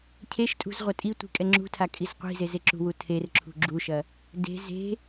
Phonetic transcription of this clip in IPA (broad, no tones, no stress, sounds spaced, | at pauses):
cʰ e ʃ tʼ ṳ z ʁʷ ɐ tʼ i tʷ i̤ kʼ ɛ ŋ͡ǁ ṳ tʰ a kʼ i z qʷ i̤ z e z e ǁ ṳ w u tʰ e r ǁʰ ṳ ɡ͡ǁ u ʃ ɐ | d e̤ z e̤